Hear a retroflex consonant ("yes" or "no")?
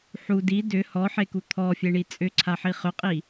yes